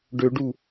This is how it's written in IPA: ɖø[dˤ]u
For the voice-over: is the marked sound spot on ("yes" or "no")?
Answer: no